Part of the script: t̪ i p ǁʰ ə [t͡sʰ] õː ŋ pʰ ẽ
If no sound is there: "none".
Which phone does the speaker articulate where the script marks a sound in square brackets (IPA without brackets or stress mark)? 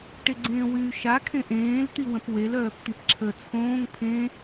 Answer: t͡sʰ